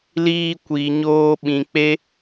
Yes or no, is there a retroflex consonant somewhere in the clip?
no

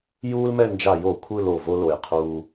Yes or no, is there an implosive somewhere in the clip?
no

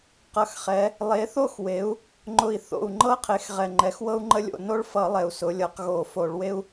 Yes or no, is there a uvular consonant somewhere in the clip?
yes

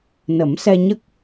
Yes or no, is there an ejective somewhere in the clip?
no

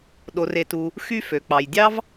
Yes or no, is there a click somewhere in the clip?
no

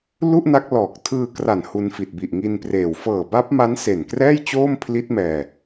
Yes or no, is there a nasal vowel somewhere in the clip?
no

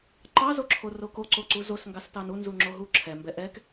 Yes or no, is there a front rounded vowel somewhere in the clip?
no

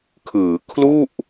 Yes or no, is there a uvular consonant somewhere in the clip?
no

